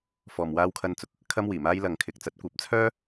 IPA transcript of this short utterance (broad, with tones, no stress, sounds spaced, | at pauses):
f ɔː˨ m w aː˧ w kʰ ɐ˧ n t͡s ʊ˨ k̚ | kʰ ɐ˧ m w iː˨˩ m aː˧ j l ɐ˨ ŋ kʰ ɪ˨ k̚ t͡s ɐ˨˥ t̚ kʷ ɐ˨˥ p̚ t͡sʰ œː˥